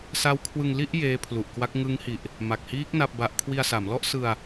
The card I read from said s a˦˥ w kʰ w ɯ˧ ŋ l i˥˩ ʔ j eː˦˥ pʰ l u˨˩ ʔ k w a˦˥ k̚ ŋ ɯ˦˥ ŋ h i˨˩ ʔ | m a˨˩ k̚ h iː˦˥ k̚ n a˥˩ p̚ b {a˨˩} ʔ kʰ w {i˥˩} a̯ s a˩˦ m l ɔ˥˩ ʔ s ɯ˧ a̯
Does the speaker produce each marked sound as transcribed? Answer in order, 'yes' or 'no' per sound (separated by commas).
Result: no, no